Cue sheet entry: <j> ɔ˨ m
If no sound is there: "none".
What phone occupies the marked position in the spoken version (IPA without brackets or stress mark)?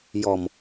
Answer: j